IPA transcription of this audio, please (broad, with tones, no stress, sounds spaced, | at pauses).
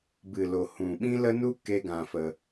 b ɨ˨ l o˨ h ũ˨ ɓ ĩ˦ l ə˦ n u˦ k e˦ ɡ ã˧ f ə˧